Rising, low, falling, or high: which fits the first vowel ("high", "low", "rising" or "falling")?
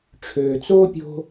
low